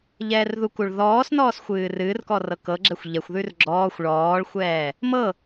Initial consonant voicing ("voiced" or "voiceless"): voiced